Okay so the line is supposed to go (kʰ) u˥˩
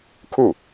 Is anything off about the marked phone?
no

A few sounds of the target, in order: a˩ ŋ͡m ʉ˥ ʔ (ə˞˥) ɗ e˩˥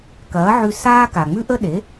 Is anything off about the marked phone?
yes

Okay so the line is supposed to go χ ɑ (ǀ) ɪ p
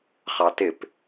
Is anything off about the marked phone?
yes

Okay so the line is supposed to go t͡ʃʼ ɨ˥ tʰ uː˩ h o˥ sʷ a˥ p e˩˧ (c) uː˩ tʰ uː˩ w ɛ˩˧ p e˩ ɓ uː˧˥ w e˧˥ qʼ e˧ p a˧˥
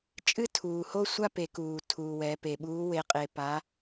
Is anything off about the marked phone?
yes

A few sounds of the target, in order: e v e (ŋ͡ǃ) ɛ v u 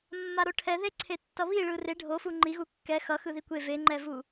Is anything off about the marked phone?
no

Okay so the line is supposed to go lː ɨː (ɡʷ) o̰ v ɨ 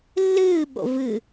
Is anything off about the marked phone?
yes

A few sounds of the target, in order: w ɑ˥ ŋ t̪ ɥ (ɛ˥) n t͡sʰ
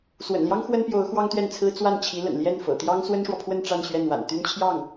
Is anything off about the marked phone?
yes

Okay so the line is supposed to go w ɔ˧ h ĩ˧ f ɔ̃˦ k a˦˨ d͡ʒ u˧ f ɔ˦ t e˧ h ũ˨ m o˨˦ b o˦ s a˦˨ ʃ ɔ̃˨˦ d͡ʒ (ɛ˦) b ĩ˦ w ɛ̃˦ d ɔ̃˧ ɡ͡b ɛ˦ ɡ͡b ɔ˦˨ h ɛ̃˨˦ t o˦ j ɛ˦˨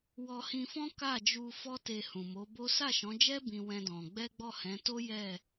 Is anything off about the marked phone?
no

